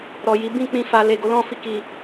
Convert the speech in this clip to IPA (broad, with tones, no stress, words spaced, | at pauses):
ɾɔ˨ji˨˦ bĩ˦˨k͡pĩ˧ fa˨ le˨ɡo˨˦lɔ̃˦˨fi˧ ki˨